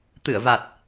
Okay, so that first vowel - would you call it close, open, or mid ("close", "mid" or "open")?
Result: close